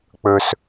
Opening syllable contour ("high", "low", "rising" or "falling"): low